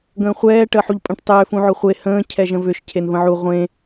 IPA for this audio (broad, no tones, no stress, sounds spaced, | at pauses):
ɡ ə̃ː χʷ ɛː ʈ əː ħ u ʎ pʼ ə̃ ʈ tˤ ʏː f ũ ʕ ʊ χʷ e h ə̃ː cʰ ɛ ʒ ə̃ v ʏ ʃ cʰ e n v ə̃ ʕ u ʁʷ ẽ